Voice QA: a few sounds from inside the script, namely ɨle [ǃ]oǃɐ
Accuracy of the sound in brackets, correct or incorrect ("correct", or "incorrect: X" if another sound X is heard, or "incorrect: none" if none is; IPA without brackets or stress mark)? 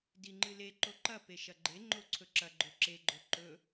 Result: correct